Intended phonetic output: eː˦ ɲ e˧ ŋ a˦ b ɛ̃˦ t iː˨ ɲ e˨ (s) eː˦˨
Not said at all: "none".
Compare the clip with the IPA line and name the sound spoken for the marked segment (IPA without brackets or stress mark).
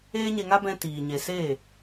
s